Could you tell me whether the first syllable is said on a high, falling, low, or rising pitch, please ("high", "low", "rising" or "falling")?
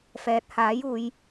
rising